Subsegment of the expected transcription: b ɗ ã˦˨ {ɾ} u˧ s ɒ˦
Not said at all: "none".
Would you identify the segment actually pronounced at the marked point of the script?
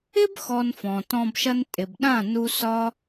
n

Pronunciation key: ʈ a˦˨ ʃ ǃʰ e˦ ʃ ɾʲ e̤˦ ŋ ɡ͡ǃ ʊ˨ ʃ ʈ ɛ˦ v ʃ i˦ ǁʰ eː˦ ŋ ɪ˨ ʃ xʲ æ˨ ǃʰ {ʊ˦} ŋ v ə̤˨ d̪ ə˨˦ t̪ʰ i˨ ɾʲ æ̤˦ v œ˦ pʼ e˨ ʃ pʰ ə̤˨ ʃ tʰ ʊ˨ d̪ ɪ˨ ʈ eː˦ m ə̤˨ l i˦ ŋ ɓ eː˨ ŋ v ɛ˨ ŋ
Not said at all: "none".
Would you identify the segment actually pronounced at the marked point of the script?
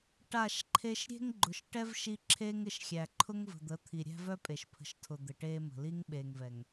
ʊ˦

